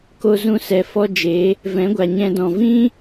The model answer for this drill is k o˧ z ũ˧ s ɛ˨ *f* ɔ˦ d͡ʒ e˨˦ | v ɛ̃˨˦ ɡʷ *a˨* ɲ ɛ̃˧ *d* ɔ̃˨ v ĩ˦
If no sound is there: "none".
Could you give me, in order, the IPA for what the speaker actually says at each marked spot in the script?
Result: f, a˨, d

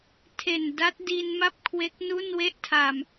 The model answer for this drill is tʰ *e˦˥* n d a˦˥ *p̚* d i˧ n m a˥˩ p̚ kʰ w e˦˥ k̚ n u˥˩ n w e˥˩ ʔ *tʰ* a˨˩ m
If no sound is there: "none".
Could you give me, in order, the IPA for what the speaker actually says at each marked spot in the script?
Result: e˨˩, t̚, tʰ

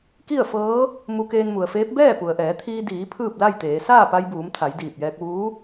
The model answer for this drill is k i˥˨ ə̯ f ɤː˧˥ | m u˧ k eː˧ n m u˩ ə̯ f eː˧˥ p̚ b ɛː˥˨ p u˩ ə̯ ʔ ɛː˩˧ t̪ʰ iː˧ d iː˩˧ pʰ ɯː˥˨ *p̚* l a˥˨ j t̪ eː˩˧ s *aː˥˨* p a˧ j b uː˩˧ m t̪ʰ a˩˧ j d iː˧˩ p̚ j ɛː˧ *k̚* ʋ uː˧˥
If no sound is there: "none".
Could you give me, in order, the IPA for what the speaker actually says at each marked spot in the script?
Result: p̚, aː˥˨, k̚

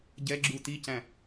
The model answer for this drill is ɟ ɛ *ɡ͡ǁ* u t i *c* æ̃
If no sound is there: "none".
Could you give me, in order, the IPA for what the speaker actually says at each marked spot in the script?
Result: ɡ͡ǁ, c

